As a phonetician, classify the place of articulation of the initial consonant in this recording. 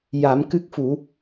palatal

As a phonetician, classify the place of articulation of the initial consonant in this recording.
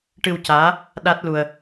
retroflex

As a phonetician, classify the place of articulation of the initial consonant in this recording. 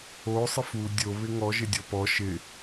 alveolar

